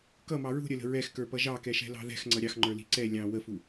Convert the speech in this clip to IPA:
kʌmɑ ɹṳ ɾʲələ̤ ɹɛxkə˞pʌ ʒɑkɛʃɛ̤lɑ̤ ðɛ̤xŋ͡ǀʌ ɾʲɑxŋ͡ǃə˞li̤ ǀɛ lʲɑ̃ wəfu

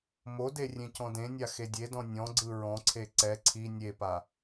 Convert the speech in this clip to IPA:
mode rʲẽcɔ̃dẽnʲa xedʲedɔ̃ nʲɔ̃ɡ͡ǀɯ ɹɔ̃ǀʰe ǀɛ ǀʰi nʲepa

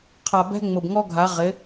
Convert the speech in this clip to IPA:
qʰa˨ bɛ̤˦ŋ͡mʊ˨bŋɔ˦ɡʱa˨˦ ʁɪ˨˦

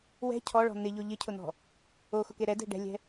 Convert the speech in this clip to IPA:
wɛ̤ cʰɔɭɔ̤ n̪ɪʎo ʎɪcʰʊn̪ɔ̤ | oxʊke ɾɛdɛ̤ ɖɛ̤lʲɛ̤

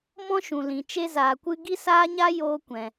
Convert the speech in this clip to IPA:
mɔ̃˧ ʃũ˨lĩ˨ t͡ʃe˧zaː˨kʷɨ˧ ɡi˧saː˧ɲa˧ joː˧kʷɛ̃˨

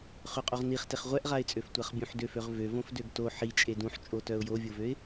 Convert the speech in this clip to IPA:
χøqʼoʁniχteχ ʁʷɛʔʁaɪ̯t͡sʼøf tʷaχbʲũħdøføʁ vøvõfdøɡ to ħi t͡ʃʼedũħt͡ʃʼotœʊ̯ jovʲovøɪ̯

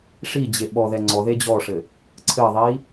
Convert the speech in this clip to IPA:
ʂid͡ʑe ɓɔðɛ ŋ͡ǀɔðe d͡ʑɔʂɘ | ǀʰɘðˤi

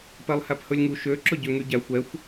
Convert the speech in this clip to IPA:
pɛlˠhæphɵlʲŋu ʃø ǁɵɟøŋyɟæxʷ ɛxʷ

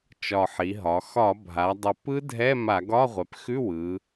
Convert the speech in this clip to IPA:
t͡ʃɒ˨˩ħi˩˧ɦɒ˩˧ xɒ˧˩˧bʱa˩˧dˤə˨˩ pɯ˦˥dʱɛ˧˥˧ ma˧˩˧ɡɒ˧˥˧ʁʷɛ˩˧pxʉ˧˥˧ wɯ˩˧

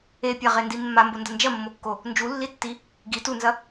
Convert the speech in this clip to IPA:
epʲaʁendi mːambondɐ nd͡ʒɐmːokːo | nd͡ʒulːitːi | ɡi tunzɐ

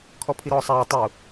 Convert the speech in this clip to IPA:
kʰɔpʰiɾɔːsˤaː tˤu

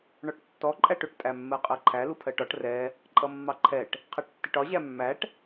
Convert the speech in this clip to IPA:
ɳɔʈtːɔ ǃʼæʈʊʈ tʼæmːɜqʼɜǃʰæ lupʰɜʈɒʈ rɛ | ǃʼʌmːɑǃʰɛʈ | qʰæʈtːiʈɒ ʑæmːæʈ

